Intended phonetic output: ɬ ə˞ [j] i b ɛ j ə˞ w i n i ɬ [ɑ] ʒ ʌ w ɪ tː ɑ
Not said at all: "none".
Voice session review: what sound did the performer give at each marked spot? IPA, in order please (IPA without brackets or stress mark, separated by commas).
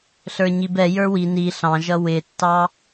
ɲ, ɑ̃